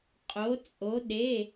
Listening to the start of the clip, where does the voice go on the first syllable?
rising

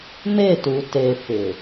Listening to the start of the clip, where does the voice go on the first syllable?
falling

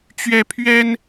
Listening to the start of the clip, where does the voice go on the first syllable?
high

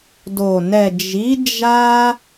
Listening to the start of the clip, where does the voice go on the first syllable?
low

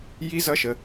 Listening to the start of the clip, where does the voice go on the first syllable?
high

